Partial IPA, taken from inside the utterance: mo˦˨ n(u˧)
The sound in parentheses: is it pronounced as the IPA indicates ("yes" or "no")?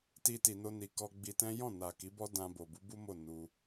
yes